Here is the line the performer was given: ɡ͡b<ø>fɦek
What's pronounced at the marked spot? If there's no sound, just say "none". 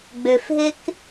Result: ø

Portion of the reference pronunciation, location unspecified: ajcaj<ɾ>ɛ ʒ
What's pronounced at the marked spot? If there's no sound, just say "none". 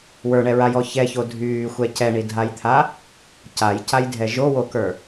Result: dʱ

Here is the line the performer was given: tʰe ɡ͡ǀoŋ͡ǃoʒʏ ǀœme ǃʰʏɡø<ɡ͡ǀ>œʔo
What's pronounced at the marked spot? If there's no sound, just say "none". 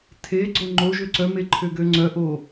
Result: ŋ͡ǀ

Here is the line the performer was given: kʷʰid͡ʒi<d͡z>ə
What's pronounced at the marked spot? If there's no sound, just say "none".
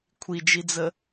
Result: d͡z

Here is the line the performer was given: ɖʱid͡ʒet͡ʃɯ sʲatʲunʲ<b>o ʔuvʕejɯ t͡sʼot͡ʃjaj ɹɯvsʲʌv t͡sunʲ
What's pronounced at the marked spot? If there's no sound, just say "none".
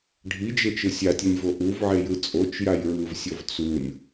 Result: v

